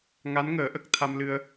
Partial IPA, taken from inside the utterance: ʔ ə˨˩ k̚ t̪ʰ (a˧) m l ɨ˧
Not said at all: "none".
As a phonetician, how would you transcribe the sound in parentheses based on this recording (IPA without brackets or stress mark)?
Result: a˧